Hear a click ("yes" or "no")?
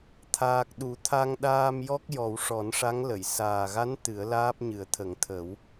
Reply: no